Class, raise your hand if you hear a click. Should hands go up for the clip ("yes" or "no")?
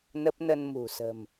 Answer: no